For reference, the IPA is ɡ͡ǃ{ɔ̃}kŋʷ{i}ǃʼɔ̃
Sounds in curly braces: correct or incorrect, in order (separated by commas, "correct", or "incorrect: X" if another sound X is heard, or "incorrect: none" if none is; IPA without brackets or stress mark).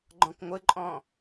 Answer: correct, incorrect: ɪ